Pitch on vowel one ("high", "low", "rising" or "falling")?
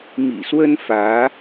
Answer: low